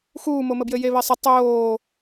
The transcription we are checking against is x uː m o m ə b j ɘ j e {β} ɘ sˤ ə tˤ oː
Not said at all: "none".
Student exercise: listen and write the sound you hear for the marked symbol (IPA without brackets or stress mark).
β